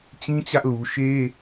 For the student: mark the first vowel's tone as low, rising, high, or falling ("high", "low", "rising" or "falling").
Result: high